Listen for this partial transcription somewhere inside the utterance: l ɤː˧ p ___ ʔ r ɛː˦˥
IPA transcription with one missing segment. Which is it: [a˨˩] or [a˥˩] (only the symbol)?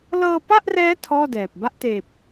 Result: a˥˩